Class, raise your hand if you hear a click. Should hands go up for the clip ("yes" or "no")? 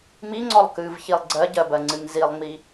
yes